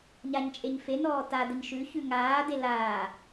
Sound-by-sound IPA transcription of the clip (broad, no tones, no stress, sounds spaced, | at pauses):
ɲ a ɲ t͡ʃʼ e ɲ f e n ɔː t a d ə ɲ ʃ ʉ ç ʉ ŋ aː d e l aː